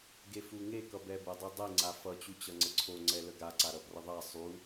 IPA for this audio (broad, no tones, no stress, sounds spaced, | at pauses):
ɡ e f u ŋ e k ʌ b ɛ b ə dˤ e dˤ e ŋ͡ǀ a f ʌ t͡ɕ u t͡ɕ ʌ ŋ͡ǀ ə ǀʰ o ŋ͡ǀ ɛ l ə ɡ a ǀ a ɾ ʌ p r ʌ ðˤ a sˤ u